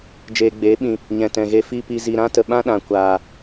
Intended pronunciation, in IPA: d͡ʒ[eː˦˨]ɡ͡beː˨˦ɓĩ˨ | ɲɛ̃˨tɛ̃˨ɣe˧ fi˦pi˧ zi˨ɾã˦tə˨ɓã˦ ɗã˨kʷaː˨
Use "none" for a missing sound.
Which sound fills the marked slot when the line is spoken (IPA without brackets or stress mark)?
eː˨